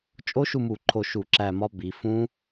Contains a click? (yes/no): yes